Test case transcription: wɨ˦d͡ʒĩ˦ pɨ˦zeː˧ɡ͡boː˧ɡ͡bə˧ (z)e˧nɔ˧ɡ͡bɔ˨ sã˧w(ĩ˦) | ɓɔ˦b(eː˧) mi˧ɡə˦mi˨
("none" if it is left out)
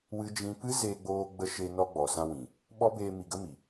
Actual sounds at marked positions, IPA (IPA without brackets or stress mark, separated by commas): ʃ, ĩ˨, eː˧